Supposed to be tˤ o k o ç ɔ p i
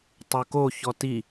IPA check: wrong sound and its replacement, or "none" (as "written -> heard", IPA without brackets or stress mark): p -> t